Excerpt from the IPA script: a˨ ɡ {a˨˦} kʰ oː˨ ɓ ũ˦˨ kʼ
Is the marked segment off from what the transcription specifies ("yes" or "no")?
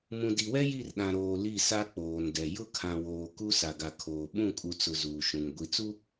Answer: yes